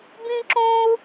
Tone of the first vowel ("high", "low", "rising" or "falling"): high